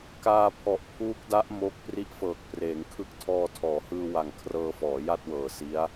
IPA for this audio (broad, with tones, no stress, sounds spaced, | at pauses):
k aː˧ pʰ ɔ˨˩ ʔ pʰ uː˦˥ k̚ d a˦˥ ʔ m o˦˥ k̚ p r i˦˥ ʔ f ɤː˨˩ k̚ p r eː˩˦ ŋ kʰ ɯ˦˥ k̚ tʰ ɔː˧ tʰ ɔː˩˦ h ɯː˧ w a˨˩ ŋ kʰ r ɤː˧ f ɔː˩˦ j a˥˩ t̚ w ɤː˨˩ s i˦˥ a̯